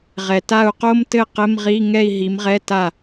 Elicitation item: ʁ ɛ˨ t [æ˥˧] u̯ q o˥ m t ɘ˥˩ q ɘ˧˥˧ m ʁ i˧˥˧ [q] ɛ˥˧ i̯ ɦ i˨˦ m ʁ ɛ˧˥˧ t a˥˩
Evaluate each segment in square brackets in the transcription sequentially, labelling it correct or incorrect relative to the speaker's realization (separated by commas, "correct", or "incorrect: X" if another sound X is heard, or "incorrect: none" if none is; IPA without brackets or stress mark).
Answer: incorrect: a˥˧, incorrect: ŋ